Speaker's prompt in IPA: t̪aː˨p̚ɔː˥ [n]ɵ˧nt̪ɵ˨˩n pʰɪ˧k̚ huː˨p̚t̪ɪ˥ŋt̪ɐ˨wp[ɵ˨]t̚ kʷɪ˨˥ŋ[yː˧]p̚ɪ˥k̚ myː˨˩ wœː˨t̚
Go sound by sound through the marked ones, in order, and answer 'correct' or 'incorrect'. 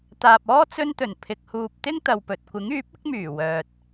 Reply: incorrect, correct, incorrect

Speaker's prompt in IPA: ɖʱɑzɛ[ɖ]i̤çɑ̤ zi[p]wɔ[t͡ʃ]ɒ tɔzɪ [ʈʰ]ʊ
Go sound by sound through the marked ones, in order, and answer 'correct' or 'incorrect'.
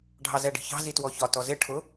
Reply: correct, incorrect, incorrect, correct

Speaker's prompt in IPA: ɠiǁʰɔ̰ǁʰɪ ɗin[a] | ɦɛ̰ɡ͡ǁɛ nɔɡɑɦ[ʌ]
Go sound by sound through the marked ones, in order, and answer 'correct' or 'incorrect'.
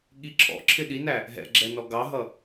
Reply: incorrect, correct

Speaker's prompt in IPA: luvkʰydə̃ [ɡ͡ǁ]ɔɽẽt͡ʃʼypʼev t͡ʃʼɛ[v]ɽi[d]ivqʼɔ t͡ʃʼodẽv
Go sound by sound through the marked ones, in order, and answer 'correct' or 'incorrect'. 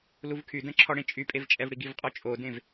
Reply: incorrect, correct, incorrect

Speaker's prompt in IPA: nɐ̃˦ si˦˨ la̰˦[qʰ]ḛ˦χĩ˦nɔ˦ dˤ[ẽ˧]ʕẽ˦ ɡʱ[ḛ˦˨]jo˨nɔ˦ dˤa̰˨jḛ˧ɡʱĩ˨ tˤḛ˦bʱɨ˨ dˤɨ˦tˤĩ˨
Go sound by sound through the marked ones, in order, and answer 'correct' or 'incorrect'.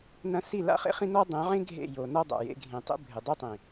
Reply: incorrect, incorrect, correct

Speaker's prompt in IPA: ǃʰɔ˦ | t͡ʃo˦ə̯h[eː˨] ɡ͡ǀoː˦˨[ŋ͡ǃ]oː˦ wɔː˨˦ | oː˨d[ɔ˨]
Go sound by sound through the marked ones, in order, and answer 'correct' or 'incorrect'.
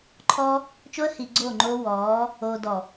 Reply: incorrect, correct, correct

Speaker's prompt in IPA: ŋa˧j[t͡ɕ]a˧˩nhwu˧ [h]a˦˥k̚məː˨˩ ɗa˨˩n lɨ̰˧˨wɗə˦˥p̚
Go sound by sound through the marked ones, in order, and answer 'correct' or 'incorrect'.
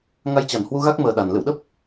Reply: correct, incorrect

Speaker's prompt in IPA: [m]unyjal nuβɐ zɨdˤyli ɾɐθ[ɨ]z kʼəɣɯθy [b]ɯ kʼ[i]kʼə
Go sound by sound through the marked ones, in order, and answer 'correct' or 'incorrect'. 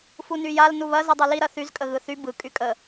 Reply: incorrect, incorrect, correct, incorrect

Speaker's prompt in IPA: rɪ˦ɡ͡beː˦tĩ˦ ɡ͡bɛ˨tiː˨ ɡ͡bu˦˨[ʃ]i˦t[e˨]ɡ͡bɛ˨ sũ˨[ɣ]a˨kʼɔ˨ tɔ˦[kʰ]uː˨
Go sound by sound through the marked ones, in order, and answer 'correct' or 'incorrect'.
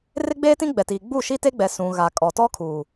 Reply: correct, incorrect, correct, correct

